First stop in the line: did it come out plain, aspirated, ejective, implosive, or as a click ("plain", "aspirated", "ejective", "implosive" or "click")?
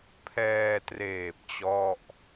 aspirated